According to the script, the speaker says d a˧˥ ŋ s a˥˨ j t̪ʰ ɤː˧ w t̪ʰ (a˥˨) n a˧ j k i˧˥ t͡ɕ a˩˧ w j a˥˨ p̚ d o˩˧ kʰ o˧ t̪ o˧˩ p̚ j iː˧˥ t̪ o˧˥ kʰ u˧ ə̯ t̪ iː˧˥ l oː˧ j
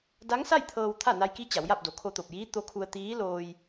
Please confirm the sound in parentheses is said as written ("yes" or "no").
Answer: yes